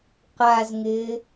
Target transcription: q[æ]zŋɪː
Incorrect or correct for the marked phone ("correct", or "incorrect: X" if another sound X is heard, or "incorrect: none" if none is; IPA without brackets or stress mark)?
incorrect: a